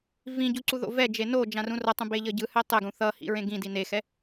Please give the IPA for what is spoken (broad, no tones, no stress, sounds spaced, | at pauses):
v ĩ ɟ u ǀ u ð o̰ v ɛ d͡ʒ e n o d͡ʒ ã r ũ r ʌ tˤ ũ b e ʎ ʌ ɟ ɯ h ɛ tˤ ɛ ɡ ũ θ ʌ h ḭ ɹ ẽ ɡ ĩ d i n e x ɛ